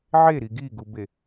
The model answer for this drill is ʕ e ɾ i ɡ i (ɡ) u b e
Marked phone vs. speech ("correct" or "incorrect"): correct